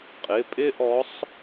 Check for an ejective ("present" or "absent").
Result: present